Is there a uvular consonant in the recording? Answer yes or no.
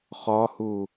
yes